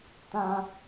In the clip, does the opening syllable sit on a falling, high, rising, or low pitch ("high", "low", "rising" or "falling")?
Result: high